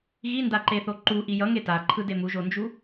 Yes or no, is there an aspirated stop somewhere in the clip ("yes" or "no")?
yes